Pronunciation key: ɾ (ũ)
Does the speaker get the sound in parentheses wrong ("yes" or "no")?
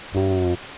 no